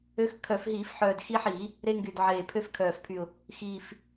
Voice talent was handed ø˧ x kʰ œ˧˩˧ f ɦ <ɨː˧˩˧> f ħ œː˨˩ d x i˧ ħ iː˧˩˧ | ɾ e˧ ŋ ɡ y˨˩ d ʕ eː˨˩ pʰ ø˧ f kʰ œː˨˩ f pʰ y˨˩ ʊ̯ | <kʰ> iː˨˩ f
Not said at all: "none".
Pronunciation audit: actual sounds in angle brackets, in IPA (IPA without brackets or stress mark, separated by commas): iː˧˩˧, x